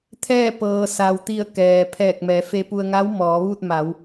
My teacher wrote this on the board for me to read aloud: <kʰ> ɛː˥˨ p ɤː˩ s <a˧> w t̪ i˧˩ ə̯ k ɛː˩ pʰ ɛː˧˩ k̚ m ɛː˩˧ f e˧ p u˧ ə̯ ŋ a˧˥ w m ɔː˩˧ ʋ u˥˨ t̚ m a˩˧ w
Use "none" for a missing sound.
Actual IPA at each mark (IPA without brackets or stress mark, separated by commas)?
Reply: t̪ʰ, a˩